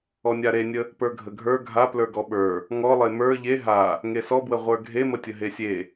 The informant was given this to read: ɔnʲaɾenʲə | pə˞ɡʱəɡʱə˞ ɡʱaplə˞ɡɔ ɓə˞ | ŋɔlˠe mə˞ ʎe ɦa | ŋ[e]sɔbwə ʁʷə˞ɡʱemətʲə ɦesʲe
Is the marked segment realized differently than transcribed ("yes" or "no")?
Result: no